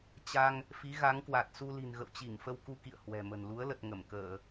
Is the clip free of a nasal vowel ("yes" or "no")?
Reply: yes